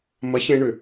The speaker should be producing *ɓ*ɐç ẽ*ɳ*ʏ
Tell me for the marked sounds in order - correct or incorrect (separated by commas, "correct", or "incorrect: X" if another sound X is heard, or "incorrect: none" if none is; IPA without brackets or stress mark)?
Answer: incorrect: m, correct